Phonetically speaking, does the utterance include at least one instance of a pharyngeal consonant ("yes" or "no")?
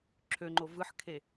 yes